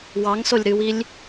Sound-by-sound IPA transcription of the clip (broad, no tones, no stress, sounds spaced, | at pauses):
w ɑ ŋ s o lʲ ɾ ɨ w i lʲ